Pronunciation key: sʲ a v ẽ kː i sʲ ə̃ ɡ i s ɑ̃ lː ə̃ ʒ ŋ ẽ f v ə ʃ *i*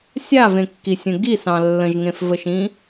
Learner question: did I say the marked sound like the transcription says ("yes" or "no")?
no